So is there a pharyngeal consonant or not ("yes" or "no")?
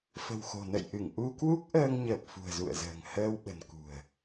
no